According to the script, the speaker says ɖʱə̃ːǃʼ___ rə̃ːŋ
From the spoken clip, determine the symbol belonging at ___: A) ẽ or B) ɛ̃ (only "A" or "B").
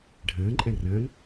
B